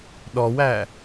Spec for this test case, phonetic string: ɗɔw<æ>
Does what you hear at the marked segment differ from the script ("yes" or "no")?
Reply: no